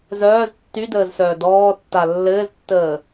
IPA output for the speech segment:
z œː z tː y d əː z s œː d ɔː tː a lː ɘː z tː əː

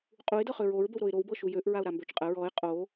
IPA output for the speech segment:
qʼ u ɪ̯ d ɤ χ ø ɹ o ɹ b ə w ɾ o ɪ̯ ɾ o w b ɤ ʃ u j ø ʔ ɹ a ʊ̯ ɾ a m b ø t͡ʃ qʼ ə ɹ ɔ ɪ̯ qʼ o

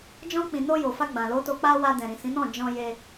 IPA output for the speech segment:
d͡ʒ ɔ̃˧ k͡p ĩ˨ n o˧ j o˨ f a˧ ɡ͡b ã˨ l o˨˦ t o˧ k͡p a˧ w a˧ d ɛ̃˨ ɾ ĩ˨ s ĩ˨˦ n ɔ̃˦˨ d͡ʒ ɔ̃˧ j e˧

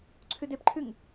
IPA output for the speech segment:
ǀʰ ʉ d e p ǃʰ ʉ ŋ

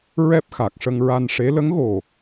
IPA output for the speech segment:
ɹ ɛ˦˥ p̚ x a˨˩ k̚ ʂ ə˧ ŋ ɹ a˧ n ʂ e˧˥ l ə˧˥ ŋ ɣ o˨˩

